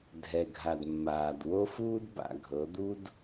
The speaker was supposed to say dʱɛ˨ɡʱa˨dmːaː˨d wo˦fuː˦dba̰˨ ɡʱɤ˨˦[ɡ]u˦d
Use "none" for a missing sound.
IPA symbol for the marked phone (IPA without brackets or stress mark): d̪